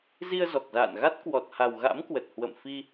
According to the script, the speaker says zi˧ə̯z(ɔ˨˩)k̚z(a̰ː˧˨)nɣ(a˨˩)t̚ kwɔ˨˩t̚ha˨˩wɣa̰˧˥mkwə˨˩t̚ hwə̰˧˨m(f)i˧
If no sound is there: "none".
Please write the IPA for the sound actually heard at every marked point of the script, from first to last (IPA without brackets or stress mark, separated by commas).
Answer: ɔ˨˩, a̰ː˧˨, a˦˥, f